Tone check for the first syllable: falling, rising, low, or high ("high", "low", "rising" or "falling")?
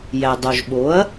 low